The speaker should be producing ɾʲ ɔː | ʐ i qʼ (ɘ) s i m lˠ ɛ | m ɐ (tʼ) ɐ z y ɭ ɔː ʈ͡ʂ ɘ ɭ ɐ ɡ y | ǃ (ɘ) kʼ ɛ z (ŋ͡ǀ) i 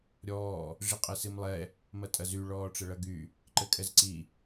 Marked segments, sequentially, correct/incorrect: correct, correct, correct, incorrect

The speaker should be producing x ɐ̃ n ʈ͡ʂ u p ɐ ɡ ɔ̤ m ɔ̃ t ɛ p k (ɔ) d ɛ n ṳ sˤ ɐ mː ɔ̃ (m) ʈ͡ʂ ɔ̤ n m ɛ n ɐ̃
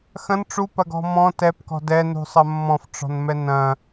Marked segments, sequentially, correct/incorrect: incorrect, incorrect

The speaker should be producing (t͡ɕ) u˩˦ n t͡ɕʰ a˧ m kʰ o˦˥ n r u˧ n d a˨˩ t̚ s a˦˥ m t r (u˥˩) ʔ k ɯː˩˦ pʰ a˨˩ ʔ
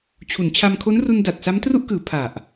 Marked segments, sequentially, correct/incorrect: incorrect, correct

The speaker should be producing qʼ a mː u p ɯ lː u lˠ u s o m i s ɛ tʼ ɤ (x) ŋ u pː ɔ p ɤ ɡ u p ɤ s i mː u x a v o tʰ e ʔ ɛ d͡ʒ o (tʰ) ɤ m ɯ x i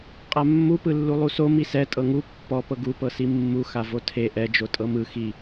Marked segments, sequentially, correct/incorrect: incorrect, incorrect

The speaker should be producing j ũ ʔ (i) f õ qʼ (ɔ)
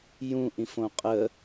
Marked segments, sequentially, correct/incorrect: incorrect, incorrect

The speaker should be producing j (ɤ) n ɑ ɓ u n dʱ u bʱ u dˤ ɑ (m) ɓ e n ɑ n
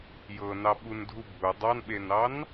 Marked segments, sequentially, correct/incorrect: correct, incorrect

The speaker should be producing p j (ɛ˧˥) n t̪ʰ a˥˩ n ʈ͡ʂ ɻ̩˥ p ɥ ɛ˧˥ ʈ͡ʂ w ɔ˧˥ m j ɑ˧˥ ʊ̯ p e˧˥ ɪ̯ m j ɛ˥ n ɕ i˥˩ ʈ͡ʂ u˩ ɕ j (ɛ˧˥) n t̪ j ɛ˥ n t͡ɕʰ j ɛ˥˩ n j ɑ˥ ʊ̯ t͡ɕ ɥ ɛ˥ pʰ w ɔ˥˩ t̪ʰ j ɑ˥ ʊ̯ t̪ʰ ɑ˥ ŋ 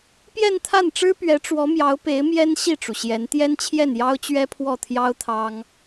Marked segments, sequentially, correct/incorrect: incorrect, correct

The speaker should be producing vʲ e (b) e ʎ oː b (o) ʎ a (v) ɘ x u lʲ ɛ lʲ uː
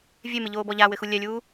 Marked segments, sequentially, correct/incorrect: incorrect, incorrect, incorrect

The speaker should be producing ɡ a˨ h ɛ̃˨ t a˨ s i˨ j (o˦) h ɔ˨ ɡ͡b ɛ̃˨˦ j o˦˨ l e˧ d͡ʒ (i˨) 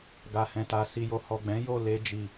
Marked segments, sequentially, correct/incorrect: incorrect, correct

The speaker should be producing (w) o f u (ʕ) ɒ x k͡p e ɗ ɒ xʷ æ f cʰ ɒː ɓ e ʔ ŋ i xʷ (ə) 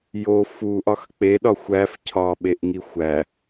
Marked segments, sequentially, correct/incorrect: incorrect, incorrect, incorrect

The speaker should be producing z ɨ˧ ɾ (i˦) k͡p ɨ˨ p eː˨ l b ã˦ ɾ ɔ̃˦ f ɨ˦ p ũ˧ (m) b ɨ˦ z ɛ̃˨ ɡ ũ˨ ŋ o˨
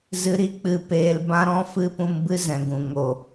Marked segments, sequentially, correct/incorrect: correct, correct

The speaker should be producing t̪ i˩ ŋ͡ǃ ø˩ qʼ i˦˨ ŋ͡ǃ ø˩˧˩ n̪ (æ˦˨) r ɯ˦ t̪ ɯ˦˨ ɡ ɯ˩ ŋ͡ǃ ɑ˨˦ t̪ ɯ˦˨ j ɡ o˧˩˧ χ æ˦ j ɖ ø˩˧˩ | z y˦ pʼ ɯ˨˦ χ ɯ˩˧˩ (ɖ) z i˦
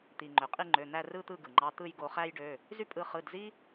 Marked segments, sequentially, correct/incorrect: correct, incorrect

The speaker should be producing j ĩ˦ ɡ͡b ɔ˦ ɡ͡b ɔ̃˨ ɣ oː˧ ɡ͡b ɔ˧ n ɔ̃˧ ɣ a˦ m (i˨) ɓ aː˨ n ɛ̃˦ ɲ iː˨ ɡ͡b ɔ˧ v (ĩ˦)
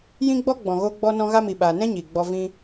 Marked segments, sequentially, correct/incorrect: correct, correct

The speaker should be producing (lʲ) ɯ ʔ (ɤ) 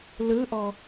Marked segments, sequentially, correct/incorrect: incorrect, incorrect

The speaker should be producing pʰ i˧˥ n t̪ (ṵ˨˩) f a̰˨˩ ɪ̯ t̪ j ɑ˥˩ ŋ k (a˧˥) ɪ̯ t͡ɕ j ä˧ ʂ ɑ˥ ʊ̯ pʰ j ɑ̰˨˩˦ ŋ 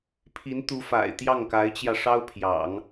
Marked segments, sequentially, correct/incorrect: incorrect, correct

